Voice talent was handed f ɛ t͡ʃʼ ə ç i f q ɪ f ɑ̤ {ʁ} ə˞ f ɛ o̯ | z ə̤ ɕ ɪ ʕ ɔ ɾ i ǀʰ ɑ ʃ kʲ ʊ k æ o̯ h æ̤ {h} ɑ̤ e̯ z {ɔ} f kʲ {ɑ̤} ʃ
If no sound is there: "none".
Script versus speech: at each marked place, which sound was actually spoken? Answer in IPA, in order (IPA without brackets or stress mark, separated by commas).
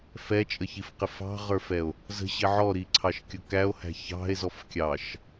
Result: ʁ, ç, ɔ, ɑ